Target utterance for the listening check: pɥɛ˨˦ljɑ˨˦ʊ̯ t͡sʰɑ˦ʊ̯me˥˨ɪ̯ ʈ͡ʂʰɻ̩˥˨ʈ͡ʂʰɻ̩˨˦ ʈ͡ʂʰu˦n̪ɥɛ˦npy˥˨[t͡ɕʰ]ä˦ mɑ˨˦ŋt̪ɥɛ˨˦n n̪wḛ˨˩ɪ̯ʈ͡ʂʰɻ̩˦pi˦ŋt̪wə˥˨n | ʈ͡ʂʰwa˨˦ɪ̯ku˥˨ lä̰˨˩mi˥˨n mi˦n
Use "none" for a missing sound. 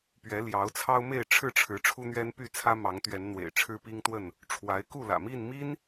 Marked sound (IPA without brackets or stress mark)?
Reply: t͡sʰ